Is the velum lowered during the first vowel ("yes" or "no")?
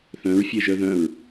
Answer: yes